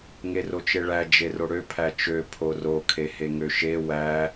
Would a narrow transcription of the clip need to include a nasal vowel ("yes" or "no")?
no